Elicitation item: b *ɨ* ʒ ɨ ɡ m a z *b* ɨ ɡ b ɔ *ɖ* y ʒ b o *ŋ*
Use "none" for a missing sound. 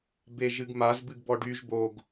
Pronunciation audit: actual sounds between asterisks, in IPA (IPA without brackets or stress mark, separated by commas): e, b, ɖ, ɡ